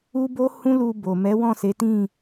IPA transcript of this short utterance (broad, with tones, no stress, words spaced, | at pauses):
u˦bo˦hũ˦ lu˧bo˨ mɛ˨˦wɔ̃˦˨ se˨˦tĩ˦˨